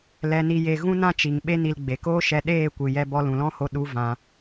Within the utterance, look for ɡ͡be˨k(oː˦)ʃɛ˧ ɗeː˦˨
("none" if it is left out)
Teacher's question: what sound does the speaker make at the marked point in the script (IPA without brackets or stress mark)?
oː˦